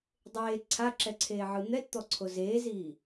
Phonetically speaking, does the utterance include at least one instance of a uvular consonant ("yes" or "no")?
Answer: no